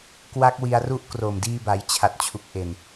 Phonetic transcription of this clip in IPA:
kwa˦˥k̚wi˧a̯ru˦˥ʔ kro˨˩mdiː˧ba˩˦jt͡ɕʰa˨˩t̚ t͡ɕʰu˨˩k̚ʔe˨˩n

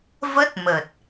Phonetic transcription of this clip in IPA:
və˦˥t̚ mə˨˩t̚

